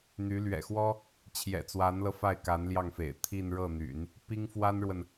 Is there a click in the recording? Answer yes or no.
no